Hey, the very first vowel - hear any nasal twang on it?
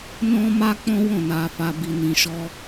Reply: yes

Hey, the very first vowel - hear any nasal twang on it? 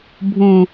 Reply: yes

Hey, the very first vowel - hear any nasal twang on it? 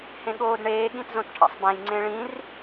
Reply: yes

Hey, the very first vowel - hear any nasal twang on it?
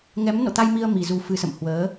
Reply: no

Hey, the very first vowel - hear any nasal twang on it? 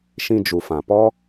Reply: yes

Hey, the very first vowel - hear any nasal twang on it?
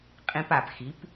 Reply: yes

